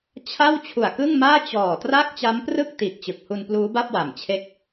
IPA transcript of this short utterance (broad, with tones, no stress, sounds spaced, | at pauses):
t͡ɕʰ a˥˩ w t͡ɕʰ u˨˩ a̯ k ɯ˥˩ ŋ m aː˥˩ t͡ɕ ɔː˨˩ t r a˥˩ k̚ t͡ɕ a˦˥ m p r ɯ˥˩ k̚ t iː˨˩ k̚ t͡ɕ ɯ˨˩ k̚ h u˧ n p l uː˦˥ b a˥˩ p̚ w a˨˩ m t͡ɕʰ e˦˥ k̚